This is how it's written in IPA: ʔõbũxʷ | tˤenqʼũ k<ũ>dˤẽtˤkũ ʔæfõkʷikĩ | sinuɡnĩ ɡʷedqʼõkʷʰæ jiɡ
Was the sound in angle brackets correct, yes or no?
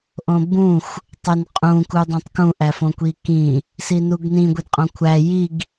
no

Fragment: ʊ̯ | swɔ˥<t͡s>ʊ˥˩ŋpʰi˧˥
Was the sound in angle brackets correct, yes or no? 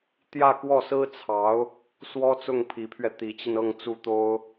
yes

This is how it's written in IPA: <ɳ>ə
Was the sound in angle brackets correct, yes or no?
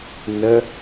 no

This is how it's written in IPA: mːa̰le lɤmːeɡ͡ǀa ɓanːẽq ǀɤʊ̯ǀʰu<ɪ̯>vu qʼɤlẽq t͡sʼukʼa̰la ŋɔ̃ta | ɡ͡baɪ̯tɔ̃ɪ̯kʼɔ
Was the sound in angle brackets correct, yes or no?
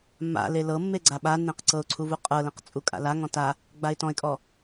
no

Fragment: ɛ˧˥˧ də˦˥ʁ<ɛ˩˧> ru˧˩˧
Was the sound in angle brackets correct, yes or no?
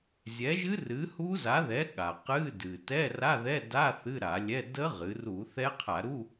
no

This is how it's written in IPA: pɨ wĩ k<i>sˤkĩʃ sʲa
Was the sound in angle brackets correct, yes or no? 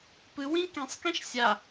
no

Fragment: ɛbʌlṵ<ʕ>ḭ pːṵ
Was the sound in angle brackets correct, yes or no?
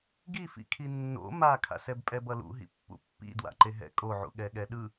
no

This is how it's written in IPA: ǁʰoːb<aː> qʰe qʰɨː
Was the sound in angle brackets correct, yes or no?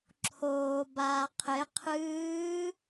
yes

